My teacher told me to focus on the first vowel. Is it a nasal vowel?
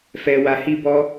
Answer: no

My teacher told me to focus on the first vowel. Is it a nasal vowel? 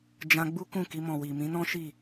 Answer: yes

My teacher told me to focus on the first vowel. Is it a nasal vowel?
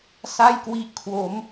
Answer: no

